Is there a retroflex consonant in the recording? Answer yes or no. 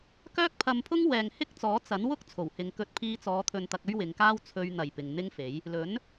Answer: no